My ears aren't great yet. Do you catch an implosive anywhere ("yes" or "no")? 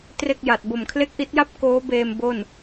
no